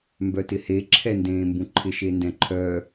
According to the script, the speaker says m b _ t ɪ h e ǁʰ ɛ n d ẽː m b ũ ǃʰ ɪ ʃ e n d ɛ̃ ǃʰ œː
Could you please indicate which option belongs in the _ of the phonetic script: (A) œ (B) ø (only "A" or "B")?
A